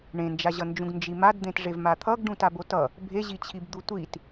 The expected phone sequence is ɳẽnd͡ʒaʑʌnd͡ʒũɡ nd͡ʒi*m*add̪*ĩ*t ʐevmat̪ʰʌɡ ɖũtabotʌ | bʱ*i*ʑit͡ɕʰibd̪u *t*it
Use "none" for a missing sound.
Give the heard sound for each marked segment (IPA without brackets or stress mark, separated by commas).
m, ẽ, e, tʷ